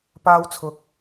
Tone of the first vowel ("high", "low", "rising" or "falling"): high